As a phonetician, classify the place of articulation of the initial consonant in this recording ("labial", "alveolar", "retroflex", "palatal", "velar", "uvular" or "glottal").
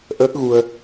glottal